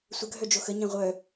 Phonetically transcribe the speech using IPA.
sʷ ə ɡʱ œ d͡ʒ o x ə ɲ ɛ̃ ʁʷ œ

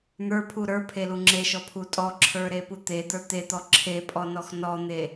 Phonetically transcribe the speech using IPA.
n̪ ə˞ pʰ u ɾ ə˞ pʰ e l u ŋ͡ǁ e ʃ ɔ pʰ u tʼ ɔ ǁʰ ə˞ ɾ e p u t̪ e d̪ ə˞ t̪ e t̪ ɔ ǁʰ e pʼ ɔ n ɔ x n ɔ n̪ e

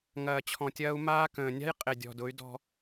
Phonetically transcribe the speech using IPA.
ŋ ɐː˨ t͡ɕʰ ɔ̃˨ tʲ ɐː˦ u̯ m aː˦ k ə̃ː˨ nʲ a̤˦ j qʼ ɪ˨ dʲ ɔ̤˨ d ʊ˨˦ y̯ d ɔ̤˦

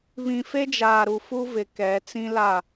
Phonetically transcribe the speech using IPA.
β ĩ˨ f e˦ d͡ʒ aː˨ ɾ u˨ f u˦ v ɪ˨ k ɛ˨˦ t͡s ĩ˦ l a˦˨

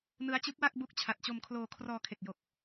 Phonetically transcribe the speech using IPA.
n ɯ˦˥ a̯ t͡ɕ ɯ˦˥ k̚ w a˥˩ k̚ b u˦˥ k̚ t͡ɕʰ a˨˩ t̚ t͡ɕ o˧ m kʰ l oː˧ kʰ r ɔː˧ kʰ e˨˩ k̚ j o˨˩ k̚

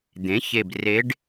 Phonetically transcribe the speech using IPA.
d̪ ẽ˩˥ ç e˨˩ b r e˧˥ ɖ

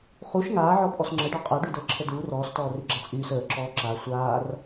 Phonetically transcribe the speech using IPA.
χ u ʃ ŋ aː ʕ ɔ pʼ ɔ s ŋ͡ǁ ə ɖ ɔ qʼ a ɖ y d əː ǁʰ ə d uː r ɔː s t ɔː r y ɡ͡ǁ a t͡sʼ yː s əː ǁ ɔː ǁ a sʷ aː r

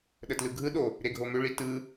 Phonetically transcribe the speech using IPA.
ɗ ə t l ɯ ɡʱ ɯ ɗ o | ɾ e ɡʱ o m ʏ ɭ i t ɯ

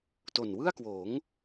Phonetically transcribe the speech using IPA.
t o˨˩ n w ɯ˥˩ a̯ k w oː˩˦ ŋ

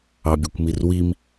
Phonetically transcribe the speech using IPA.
ɑ bʲ u kʷ m i r w i m

